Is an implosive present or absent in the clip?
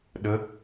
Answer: present